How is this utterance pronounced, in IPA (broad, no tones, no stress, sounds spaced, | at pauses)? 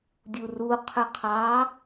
dʲ u r u qʰ ɵ qʰ ɑ